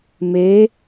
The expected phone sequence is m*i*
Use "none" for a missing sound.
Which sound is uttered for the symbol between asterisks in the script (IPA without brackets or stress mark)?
e